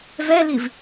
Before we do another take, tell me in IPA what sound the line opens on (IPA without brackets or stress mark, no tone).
v